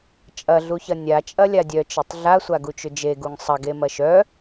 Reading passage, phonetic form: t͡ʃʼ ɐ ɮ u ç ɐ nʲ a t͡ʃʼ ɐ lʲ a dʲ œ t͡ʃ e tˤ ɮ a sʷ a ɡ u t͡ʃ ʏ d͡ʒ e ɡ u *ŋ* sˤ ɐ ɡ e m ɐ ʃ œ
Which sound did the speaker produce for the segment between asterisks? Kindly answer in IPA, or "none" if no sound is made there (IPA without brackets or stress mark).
ŋ